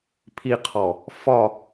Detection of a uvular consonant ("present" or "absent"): present